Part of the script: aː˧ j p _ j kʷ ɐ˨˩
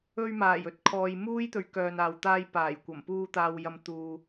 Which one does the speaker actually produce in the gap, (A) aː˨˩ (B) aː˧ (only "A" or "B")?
A